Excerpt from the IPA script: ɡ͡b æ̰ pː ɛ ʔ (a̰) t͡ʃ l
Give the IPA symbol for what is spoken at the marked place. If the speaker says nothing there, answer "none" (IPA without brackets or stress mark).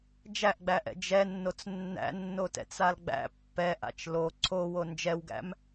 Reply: a̰